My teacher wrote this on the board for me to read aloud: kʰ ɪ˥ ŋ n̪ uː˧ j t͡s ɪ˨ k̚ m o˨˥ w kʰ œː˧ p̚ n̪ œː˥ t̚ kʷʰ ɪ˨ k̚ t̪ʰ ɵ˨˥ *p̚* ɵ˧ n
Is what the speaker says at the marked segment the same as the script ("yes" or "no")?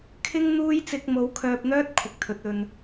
no